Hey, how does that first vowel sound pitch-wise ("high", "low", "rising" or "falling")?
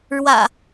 low